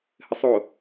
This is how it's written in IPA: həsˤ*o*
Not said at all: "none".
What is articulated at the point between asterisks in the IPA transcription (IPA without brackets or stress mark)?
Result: o